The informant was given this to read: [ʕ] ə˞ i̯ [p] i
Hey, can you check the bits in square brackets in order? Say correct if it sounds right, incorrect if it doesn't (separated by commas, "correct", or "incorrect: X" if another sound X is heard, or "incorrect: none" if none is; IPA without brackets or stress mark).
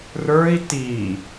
incorrect: r, incorrect: t